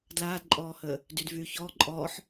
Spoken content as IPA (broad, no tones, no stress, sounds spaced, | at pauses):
d l aː d ǃʼ ɔː h əː | d y d v yː ç ɔː ǃʼ ɔː ħ